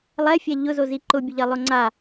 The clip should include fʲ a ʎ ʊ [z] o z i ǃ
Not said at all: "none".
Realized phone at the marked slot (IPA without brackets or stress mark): z